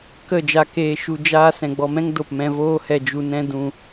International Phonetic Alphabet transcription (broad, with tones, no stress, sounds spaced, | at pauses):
k ə˦˨ d͡ʒ a˧ k eː˧ ʃ u˧ d͡ʒ aː˦ s ɛ̃˨ ɡ͡b ɔ˧ m ɛ̃˦ ŋ d o˨ p m ɛ̃˧ v oː˦ h ɛ˧ d͡ʒ u˧ n ɛ̃˦ d ũ˧